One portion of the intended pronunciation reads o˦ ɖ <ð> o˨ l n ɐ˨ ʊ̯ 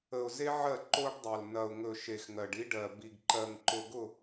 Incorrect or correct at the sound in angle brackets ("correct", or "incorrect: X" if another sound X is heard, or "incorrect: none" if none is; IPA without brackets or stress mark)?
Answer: incorrect: dˤ